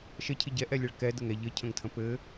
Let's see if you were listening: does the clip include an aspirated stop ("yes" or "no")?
yes